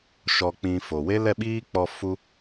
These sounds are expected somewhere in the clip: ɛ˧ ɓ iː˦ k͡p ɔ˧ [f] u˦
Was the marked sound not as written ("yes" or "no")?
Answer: no